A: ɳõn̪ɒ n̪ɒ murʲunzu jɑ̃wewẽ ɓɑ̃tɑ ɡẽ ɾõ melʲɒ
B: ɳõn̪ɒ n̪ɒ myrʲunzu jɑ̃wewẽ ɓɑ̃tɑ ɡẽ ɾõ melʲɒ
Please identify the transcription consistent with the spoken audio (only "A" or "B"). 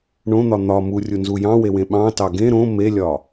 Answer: A